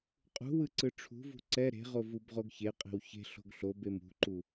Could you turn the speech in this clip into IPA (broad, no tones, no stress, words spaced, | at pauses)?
qʼṳwɯ ǀɯʈ͡ʂʰṳvṳ ǀɛ ɾe̤ʁo vubʁoɡçeqʼe̤w çe̤ ɬo̤ɡɬobem ṳǃu